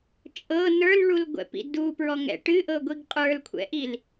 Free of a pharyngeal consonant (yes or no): yes